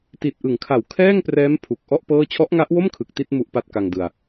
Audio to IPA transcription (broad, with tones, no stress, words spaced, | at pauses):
ti˨˩t̚ʔɯ˩˦ŋkʰa˨˩wkʰɛː˥˩ŋ prɛː˦˥m pʰu˨˩k̚ʔɔ˥˩ʔ pɤː˥˩ t͡ɕʰɔ˦˥ʔŋa˦˥ʔwo˥˩m kʰɯ˨˩k̚ti˥˩t̚ mu˦˥ʔpa˦˥t̚ka˧ŋdɯ˧a̯